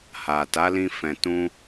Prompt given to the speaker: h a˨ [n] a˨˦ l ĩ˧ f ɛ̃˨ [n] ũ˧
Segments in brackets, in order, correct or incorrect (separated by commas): incorrect, incorrect